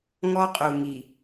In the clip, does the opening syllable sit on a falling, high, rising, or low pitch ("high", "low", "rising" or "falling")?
high